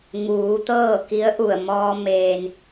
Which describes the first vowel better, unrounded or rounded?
rounded